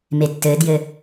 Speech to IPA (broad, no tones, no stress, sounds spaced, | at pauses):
m e tː ɘː d j ɘ